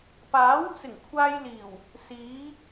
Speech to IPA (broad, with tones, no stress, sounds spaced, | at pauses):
p aː˨˥ w t͡s ɪ˨˩ ŋ kʷʰ aː˧ j l iː˨˩ w | s iː˨˥